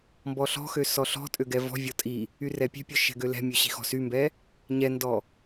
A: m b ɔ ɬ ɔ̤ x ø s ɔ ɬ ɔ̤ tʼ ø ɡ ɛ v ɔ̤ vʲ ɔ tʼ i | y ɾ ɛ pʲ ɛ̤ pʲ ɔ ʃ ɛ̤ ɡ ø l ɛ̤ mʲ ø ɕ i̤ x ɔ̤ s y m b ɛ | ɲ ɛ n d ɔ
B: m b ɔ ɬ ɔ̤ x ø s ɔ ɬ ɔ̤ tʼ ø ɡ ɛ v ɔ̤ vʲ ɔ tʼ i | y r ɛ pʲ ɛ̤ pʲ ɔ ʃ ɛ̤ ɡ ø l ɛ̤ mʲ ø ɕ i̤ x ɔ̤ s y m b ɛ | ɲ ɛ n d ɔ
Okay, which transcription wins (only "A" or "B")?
B